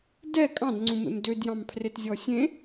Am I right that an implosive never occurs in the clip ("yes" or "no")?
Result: yes